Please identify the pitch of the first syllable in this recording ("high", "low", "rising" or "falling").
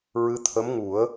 rising